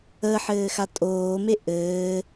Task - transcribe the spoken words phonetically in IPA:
ə ħ ɘː x a tʼ oː m e ʔ ɘː

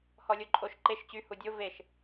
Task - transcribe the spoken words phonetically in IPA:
h ɔ lʲ o ǃʼ o ʃ ǃ e ʃ t͡ɕ y h u dʲ o v e ʃ

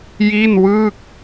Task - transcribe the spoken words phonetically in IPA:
j i˥˩ n w ɯː˥˩ k̚

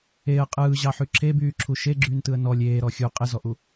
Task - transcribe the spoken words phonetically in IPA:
e ə̯ qʼ ɯː ʑ ɑ ħ y ǁʰ e b yː ǁʰ u ʃ e ɡ͡ǁ yː n t ɯ ə̯ n ɔ lʲ eː ɾ ɔ xʲ u qʼ ɪ z ɔ ʔ u

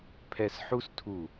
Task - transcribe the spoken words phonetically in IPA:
pʰ ɛ˧ s ħ u˦ s tʰ u˦˨

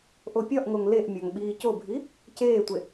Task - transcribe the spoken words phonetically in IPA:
ʔ o pʲ ɒ ʔ ŋ o ŋ l e ʔ mʲ ɒ ŋ ɓ iː c o bʱ i | c eː tʷ e

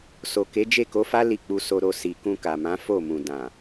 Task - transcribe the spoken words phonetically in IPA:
s o˨ k e˨˦ d͡ʒ e˦˨ k o˨˦ f a˦ l i˦˨ k͡p u˧ s o˧ ɾ o˧ s i˨ k ũ˧ k a˨ m ã˨˦ f o˦˨ m ũ˨ d ã˨

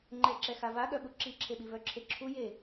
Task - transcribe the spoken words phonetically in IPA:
ŋ͡ǃ ɛ ǁ ɛ x a v a ɠ œ ɓ u ǁ i ǁʰ e ɓ i v œ ǁʰ e ǁʰ u j e

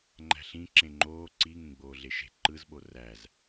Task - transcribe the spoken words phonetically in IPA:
ŋ͡ǃ æ̤ ɬ ĩ ǁ ẽ ŋ͡ǃ oː ǀ i ŋ ẽ ɡ͡b oː ɮ e ʃ e̤ ǃ ɯ z ɓ o r æ z

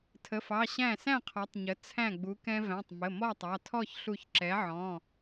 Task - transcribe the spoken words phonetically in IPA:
tʰ ə˩˧˩ f ɑ˩˧˩ ɕ æ̃˧˩ s æ̃˥˨ qʰ ɔ˩˧ tˤ ɲ ə˩˥ t͡sʰ æ̃˧˩ ɡ͡b u˩˧ k ɛ̃˧ v æ̃˩˧˩ tˤ m ə˩˧˩ m ɔ˥˨ tˤ ɑ˩˧˩ tʰ ɔ˥˨ ç ɬ u˧˩ ç ǁ ɛ˩˥ ʕ ɔ̃˩˧˩

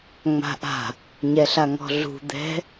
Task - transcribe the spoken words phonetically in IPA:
ŋ͡m a̤ ʔ a̤ | ɲ ɛ ɬ a ŋ ɔ̤ ɮ ṳ d̪ ɛ̤

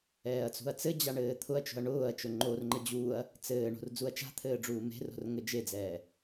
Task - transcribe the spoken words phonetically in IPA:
ɛː ɐ̯ t͡s ṳ ɐ̯ t͡s ɘ d͡ʑ a ɳ ɘː t̪ʰ ʊ ɐ̯ t͡ʃ o̤ ɐ̯ ɳ ʊː ɐ̯ t͡ʃ o ŋ͡ǃ o r ŋ͡ǃ ɘ d͡ʑ uː ɐ̯ | t͡s ɘː ɳ o̤ r d͡z u ɐ̯ t͡ʃ a̤ t̪ʰ ɘː ɖ͡ʐ uː m e̤ r o̤ r ŋ ɘ d͡ʒ e d͡z ɛː

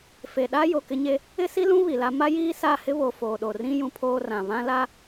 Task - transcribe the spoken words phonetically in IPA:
f e˨ ɗ a˦ j o˨ k ɪ˦ ɲ e˦ | ɪ˦ s i˦ l ũ˦ β i˨ l a˦ m a˦ j iː˦ s a˦˨ h ɪ˦ β o˨ f oː˨ ɗ o˨ r ĩ˦ j ũ˦ pʰ oː˦ r ã˨ β ã˦ l a˦

